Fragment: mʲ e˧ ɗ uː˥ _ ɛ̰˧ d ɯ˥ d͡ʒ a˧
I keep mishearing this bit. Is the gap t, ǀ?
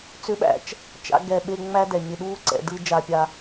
ǀ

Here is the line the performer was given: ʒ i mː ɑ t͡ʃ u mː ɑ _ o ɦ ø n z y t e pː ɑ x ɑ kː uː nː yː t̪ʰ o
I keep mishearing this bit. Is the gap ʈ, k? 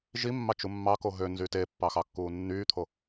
k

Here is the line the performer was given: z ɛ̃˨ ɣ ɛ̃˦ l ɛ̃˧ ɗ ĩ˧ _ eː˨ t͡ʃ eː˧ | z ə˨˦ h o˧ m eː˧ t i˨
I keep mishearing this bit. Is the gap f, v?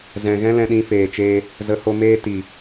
f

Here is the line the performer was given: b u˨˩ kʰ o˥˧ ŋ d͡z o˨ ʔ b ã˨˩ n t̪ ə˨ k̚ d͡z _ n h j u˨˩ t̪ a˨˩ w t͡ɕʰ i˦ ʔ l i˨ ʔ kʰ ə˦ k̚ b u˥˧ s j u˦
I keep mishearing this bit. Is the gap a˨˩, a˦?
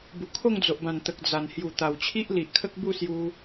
a˨˩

